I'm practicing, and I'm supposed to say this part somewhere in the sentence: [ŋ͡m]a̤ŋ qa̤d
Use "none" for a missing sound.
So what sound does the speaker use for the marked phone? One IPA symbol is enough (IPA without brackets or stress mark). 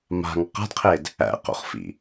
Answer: m